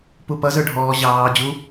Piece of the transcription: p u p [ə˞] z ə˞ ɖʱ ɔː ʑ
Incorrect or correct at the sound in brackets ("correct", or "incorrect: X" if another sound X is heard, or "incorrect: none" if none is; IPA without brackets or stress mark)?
incorrect: ʌ